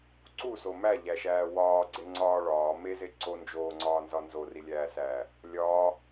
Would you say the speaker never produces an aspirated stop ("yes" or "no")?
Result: yes